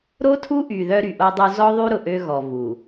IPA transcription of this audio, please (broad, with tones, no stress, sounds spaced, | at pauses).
ɾ o˦ tʰ u˦ ʔ y˨ ð œ˦ ɾ y˨ ʔ o˦ dˤ u˦ z ɔ˦ ðˤ y˦ ɾ ʊ˨ ʔ ø˦ ɣ ɔ˨ v u˨